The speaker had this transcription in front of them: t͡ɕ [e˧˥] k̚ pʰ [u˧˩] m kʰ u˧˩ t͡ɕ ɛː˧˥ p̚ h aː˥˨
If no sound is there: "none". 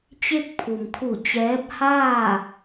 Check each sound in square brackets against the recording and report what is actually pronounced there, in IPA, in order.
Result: e˥˨, u˩

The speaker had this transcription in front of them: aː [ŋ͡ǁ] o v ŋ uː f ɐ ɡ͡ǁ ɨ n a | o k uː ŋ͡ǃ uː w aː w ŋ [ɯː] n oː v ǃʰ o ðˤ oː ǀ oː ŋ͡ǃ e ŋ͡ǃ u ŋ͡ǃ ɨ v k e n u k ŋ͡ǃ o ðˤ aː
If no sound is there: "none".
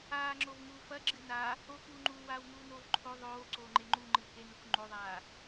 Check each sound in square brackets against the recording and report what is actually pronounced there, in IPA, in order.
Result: ŋ͡ǁ, uː

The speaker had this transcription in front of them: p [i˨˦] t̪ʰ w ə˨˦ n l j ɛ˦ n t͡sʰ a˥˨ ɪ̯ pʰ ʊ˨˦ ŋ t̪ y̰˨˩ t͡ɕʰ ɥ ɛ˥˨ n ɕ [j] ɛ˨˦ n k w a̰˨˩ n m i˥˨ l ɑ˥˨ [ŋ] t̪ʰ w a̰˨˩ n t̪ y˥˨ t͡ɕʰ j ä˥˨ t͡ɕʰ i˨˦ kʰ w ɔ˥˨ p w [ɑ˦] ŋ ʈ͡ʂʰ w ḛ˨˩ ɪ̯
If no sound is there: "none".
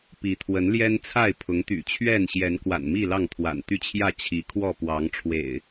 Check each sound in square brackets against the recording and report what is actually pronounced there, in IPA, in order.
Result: i˨˦, j, ŋ, ɑ˨˦

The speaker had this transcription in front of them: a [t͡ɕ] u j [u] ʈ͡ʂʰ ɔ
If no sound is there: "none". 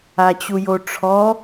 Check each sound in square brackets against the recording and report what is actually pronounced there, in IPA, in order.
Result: t͡ɕ, o

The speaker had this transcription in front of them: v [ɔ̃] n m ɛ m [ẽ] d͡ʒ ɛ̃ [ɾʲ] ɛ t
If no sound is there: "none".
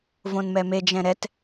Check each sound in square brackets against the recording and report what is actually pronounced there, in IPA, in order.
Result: õ, e, ɾ

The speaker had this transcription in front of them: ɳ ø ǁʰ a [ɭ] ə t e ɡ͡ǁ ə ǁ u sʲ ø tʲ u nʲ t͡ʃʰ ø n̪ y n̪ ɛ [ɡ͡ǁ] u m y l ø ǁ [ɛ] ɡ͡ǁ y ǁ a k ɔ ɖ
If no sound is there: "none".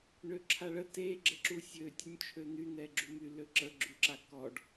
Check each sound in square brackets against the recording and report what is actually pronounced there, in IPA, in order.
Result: ɭ, ɡ͡ǁ, ə

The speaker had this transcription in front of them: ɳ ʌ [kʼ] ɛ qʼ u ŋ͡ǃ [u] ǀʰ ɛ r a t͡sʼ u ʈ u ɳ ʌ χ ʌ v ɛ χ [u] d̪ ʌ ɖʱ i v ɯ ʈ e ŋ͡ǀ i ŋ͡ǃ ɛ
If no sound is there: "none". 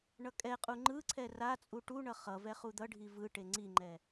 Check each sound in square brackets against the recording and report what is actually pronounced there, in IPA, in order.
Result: kʼ, ɯ, u

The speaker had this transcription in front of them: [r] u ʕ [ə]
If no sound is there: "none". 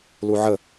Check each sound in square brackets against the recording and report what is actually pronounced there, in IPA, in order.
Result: l, ə

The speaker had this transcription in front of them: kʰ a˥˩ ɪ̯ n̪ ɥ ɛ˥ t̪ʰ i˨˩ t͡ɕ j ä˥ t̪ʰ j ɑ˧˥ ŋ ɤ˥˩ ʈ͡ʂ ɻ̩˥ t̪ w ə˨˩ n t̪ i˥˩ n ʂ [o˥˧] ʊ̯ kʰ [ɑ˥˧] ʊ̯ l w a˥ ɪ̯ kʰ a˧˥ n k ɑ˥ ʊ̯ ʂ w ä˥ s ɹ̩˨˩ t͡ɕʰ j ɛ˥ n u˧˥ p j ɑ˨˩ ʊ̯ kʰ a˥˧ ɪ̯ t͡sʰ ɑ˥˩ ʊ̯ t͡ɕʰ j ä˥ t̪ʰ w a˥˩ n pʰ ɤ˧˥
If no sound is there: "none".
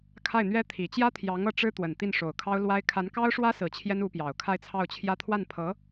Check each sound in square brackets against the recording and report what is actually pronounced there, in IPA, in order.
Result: o˨˩, ɑ˥

